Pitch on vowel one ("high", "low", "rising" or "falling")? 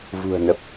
low